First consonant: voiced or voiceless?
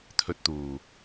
voiceless